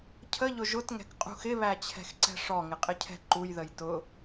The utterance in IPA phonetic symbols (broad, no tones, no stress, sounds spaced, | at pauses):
cʰ ə ʎ ʊ ʒ ʊ t ŋ ɛ̤ k qʼ ṳ x ɪ β æ t͡ɕʰ ɛ̤ x ǀ ɛ̤ ʂ ɔ ŋ ɪ qʼ ɪ cʰ ɛ̤ ǃ u j ð ə j t ʊ